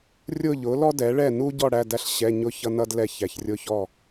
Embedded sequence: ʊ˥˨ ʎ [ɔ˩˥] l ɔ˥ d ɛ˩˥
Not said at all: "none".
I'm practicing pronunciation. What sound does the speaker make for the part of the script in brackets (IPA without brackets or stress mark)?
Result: ʊ˩˥